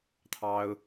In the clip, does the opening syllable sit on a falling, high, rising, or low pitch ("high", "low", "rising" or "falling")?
high